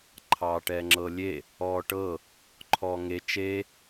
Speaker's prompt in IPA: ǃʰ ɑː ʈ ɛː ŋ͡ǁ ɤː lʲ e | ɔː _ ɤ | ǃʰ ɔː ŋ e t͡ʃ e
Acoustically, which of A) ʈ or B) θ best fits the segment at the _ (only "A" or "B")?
A